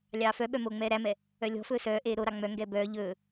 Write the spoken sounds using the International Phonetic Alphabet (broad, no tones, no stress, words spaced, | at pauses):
lʲɑːfœɓœ moːŋ͡mɛːɾæmɛ | œlʲɔ̤fɵː sœːʔeː ɾoɾɑ ŋ͡mœŋɡɛː bœː ʎɵː